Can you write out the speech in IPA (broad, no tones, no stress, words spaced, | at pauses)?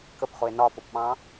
kəpχʊe̯ nɒfʊpɓɑ̃